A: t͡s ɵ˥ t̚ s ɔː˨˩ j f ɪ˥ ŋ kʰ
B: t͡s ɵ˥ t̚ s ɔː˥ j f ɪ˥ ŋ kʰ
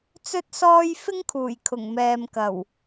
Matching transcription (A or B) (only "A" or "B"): B